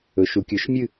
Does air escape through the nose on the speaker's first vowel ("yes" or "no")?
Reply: no